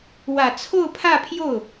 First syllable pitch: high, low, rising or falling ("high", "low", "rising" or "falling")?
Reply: low